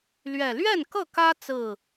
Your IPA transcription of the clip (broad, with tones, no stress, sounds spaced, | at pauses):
l ɥ ɛ˨˩ l ɥ ɛ˥˨ n k ɤ˥˨ k ä˦ t͡s ɹ̩˥˨